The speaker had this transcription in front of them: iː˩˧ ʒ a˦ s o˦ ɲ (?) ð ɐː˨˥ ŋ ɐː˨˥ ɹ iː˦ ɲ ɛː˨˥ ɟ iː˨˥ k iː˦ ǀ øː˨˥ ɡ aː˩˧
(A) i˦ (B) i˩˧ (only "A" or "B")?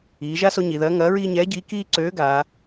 B